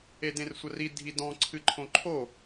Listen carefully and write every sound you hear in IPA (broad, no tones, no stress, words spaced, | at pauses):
edẽrsʷɐri dʱidɔ̃ǀʰɨǃʰõ ǃʰo